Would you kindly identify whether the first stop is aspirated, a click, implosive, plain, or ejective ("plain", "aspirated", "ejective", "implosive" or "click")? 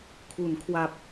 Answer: aspirated